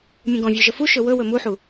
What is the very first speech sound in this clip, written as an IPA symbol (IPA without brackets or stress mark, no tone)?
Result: mʲ